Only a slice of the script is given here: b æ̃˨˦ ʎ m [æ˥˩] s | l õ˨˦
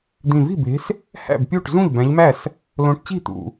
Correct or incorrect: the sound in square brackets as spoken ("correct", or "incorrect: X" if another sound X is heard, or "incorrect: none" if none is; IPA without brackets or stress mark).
correct